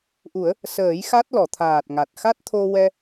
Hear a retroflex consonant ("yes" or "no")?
no